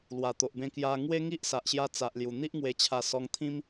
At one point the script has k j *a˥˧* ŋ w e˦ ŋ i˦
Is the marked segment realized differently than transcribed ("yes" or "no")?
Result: yes